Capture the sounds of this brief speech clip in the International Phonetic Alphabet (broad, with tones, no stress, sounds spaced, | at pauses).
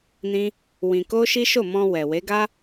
n ĩ˦ | w ĩ˧ k o˦ ʃ i˦ ʃ o˦˨ m ɔ̃˧ w ɛ˨ w e˨˦ ɡ a˦